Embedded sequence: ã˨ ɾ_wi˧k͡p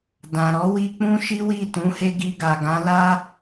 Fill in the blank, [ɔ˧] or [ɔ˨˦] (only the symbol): ɔ˨˦